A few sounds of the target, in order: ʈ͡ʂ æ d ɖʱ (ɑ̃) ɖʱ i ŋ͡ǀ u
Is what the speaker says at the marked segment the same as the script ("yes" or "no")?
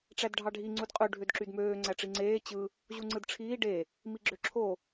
no